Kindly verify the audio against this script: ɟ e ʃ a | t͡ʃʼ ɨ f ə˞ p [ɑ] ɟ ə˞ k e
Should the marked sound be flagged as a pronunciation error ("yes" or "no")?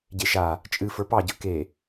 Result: no